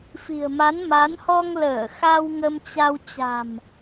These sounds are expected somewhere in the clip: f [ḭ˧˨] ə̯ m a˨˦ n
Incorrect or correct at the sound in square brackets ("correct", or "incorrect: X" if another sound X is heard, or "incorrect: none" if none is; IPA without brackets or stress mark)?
incorrect: i̤˨˩